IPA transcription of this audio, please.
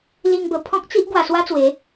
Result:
li˧ŋbə˨˩ pʰɔ̃˦k̚t͡si˦ʔ ɡwa˧swa˦t͡swe˨˦

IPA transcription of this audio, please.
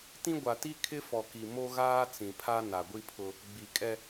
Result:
tĩ˦ ɡʷa˨ti˦ kʰɪ˦fɔ˨ki˨ mo˦ɣaː˦ t͡sĩ˨pʰa˦ na˨ɡʷi˦pʰʊ˦ | ɡ͡bi˨kʼɛ˦

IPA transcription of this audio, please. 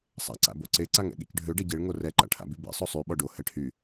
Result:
sˤa̰ǀa̰boǀe ǀaŋɛ̰ɠḛcɖʱø ɖɛɟeɭ ŋorɛ ǃa̰ʈʰa̰bybḛ sˤosˤy ɓɔɖo hɛʈʰy

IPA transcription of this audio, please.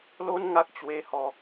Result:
lo˦nŋa˦k̚ t͡ɕwe˧ hɔ˧

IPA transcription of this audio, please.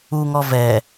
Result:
uŋɔ vɛ

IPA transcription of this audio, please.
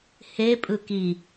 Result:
he pʼɯki

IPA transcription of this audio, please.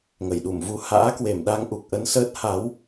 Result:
ŋə˧˩jɗu˧˩m vu˨˩ ha̰ː˧˥kwe˧˩m ɗa˧ŋʔu˨˩k̚ʔə˨˦nsəː˦˥t̚ ha˨˦w

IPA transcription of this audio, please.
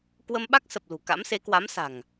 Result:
kwə˧mɓa˦˥k̚sə˨˩p̚ lṳ˨˩ ka̰˧˥mse˨˦kwa˨˦msa̤˨˩ŋ

